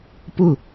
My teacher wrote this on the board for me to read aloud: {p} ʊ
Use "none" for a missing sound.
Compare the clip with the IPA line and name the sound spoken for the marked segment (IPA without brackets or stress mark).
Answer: p